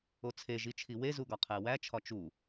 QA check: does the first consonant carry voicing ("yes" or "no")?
no